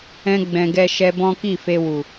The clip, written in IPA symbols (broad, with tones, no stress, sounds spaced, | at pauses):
ɛ̃˧ ɡ͡b ɛ̃˨ ɡ ɛ˧ ʃ ɛ˧ b ɔ̃˦ k i˦˨ f e˧ w u˨